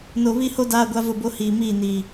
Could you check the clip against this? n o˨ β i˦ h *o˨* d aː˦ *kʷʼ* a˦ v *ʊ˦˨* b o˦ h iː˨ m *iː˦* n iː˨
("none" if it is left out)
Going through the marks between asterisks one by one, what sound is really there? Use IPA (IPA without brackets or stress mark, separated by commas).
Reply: o˦, ɡʷ, ʊ˦˨, iː˦˨